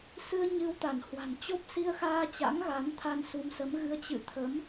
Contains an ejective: no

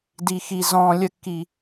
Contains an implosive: no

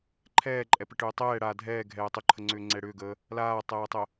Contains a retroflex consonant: yes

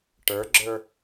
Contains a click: yes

